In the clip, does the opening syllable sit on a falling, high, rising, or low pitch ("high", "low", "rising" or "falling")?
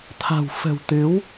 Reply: low